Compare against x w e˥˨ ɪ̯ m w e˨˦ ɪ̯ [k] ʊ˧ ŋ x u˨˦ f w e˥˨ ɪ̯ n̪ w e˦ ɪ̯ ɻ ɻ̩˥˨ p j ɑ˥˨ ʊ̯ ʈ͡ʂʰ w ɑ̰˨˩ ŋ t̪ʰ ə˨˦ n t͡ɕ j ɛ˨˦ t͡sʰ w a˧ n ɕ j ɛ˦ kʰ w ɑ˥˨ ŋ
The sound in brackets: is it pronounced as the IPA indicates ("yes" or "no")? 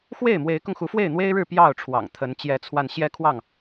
yes